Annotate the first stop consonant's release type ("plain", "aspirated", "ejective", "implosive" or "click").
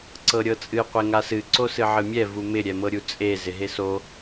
click